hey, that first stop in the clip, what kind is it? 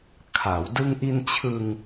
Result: aspirated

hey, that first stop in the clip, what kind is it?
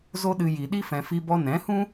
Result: implosive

